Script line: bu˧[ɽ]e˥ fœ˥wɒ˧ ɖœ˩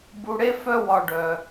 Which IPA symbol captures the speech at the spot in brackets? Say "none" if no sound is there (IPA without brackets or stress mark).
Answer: ɽ